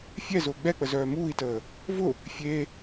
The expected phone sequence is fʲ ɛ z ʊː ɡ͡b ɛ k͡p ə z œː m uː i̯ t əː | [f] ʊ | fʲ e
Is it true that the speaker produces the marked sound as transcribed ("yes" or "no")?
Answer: no